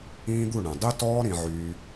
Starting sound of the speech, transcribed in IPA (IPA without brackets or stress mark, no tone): ĩː